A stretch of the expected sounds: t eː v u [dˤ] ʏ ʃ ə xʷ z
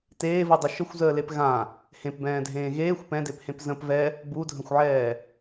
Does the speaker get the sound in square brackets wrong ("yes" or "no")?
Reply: no